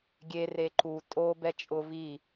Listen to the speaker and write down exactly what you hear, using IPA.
ɡʲe reǃu tʼo bɛt͡ʃʼʊ vi

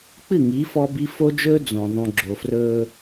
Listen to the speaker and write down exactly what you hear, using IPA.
k͡pɨ˦˨ŋiː˨˦ fɔ˦bi˦ fo˦d͡ʒɵː˦ d͡zõ˨ ðˤũ˨ɡ͡ǁo˨frɵː˦

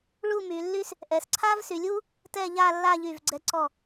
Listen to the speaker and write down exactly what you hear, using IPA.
ɭu˥˧my˩˧lːy˥s | ʔɛ˩˧sǀʰa˥vsy˩˧lʲu˥ | tɛ˥˧ʎa˥˧lːa˥˧ ʎy˧˩vɡ͡ǀɛ˧ ǀɔ˧˩

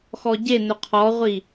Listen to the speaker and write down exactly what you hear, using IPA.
xɔɟe nɵqʰɔʁʷi

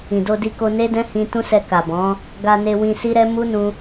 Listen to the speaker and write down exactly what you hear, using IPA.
ĩ˨do˧di˧ko˧ ne˦dɛ̃˦hĩ˧ tũ˦sɛ˧ ka˨bɔ̃˨˦ | ɡa˧ne˧wĩ˧ si˦ɾɛ˦ mu˦ nũ˧

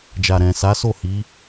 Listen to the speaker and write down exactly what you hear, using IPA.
d͡ʒa˨ɾɛ̃˨ sa˨˦so˦˨ hi˨˦

